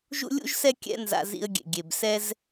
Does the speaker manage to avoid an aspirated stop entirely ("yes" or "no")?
yes